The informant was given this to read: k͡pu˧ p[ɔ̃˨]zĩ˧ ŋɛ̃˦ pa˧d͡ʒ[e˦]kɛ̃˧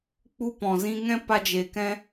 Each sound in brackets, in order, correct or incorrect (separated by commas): correct, incorrect